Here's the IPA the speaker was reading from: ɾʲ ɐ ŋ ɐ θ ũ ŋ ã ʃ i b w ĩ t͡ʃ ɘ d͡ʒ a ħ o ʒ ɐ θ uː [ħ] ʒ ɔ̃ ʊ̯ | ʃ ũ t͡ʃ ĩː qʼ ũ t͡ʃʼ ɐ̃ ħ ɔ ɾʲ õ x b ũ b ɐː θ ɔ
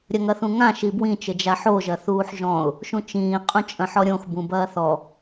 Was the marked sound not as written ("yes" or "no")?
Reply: no